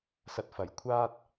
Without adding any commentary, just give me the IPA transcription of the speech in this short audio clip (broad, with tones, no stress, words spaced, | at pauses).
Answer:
sɐ˨t̚ fɐ˨˩j kʷʰaː˥t̚